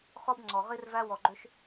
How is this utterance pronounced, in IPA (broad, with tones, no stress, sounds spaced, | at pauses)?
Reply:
χ ɔ˦ b ŋ͡ǀ ɔ˧ ʁ i˦ r v æ˦ w ɔ˧ ɡ͡ǃ ʏ˦ ʃ